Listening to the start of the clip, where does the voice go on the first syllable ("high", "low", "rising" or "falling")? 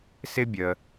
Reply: high